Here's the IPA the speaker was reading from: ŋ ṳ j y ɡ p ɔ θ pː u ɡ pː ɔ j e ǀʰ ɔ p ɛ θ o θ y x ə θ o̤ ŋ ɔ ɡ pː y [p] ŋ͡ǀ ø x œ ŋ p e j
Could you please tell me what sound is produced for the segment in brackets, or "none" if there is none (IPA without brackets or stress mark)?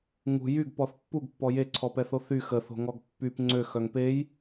p